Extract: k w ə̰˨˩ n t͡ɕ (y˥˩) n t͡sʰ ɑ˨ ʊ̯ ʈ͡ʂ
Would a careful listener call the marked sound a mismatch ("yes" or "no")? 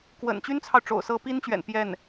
yes